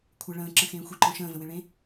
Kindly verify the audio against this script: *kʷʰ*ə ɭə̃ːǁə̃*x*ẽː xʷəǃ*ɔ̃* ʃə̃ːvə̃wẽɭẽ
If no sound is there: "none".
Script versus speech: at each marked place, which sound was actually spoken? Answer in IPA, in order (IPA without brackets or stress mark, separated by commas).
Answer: kʷʰ, x, ɔ̃